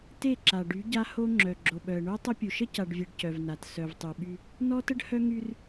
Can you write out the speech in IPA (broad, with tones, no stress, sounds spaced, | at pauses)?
t e˦˨ ǁ a˨ ɖ y˨˦ ɟ a˦ h o˦ ŋ͡ǁ œ˨ ɡ͡ǁ o˨ ɓ œ˨ ə̯ ɳ o˦ tˤ ə˦ pʲ u˨ ʃ ə˦ c a˨ ɖ vʲ e˨ ɖ c œ˨ v n a˨ t s œ˨ v tˤ y˨ ɓ y˦ | n ɔ˦ t ə˦ ɖ h œ˦ ŋ y˦ r